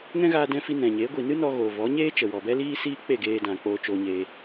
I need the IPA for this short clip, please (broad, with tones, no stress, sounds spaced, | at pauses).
ŋ ɛ̃˦ ɣ aː˧ d ɛ̃˧ f i˧ n ɛ̃˨ ɲ eː˨˦ ɡʷ i˨ n ɨ˦ n ɔ˧ ɣ oː˨ v ɔ˨˦ ɲ eː˦ t͡ʃ ə˨ w ɔ˨ b ɛ˦ l iː˦ s iː˦ k͡p e˦˨ ɡ eː˧ d ã˨ k͡p oː˧ t͡ʃ oː˧ ɲ eː˧